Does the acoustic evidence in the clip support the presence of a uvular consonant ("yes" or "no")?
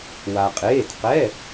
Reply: yes